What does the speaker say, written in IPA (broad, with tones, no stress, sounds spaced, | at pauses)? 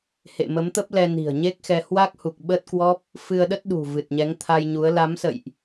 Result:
h ḛ˧˨ m ə˨˦ m t̪ ə˦˥ p̚ l ɛ˧ n i̤˨˩ ə̯ ɲ e˦˥ k̚ x ɛ˧ h w a˦˥ k̚ h u˨˩ k̚ ɓ əː˦˥ t̚ k w ɔ˦˥ p̚ | f ɨ˧ ə̯ ɗ ə˦˥ t̚ ɗ ṳ˨˩ v ɨ˨˩ t̚ ɲ ɛ˨˦ ŋ t̪ʰ a˧ j ɲ u˨˦ ə̯ l a˨˦ m s ə̰˧˨ j ʔ